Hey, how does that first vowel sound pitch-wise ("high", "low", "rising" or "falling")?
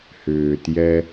low